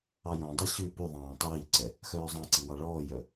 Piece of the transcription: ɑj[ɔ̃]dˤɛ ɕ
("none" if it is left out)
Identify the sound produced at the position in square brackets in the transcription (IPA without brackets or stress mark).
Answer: ɔ̃